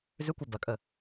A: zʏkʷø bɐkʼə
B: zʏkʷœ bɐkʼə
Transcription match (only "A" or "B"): B